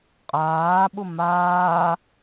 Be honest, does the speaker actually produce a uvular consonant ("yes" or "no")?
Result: yes